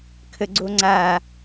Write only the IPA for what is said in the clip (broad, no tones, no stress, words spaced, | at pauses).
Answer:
kʰəɡ͡ǀoŋ͡ǀa